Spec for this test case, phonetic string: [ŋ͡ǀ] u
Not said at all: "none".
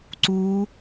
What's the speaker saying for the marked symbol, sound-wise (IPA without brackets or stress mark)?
ǀ